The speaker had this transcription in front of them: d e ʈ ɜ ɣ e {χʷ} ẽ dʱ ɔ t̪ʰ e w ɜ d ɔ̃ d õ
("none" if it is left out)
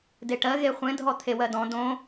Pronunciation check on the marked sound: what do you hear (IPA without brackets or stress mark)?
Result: χʷ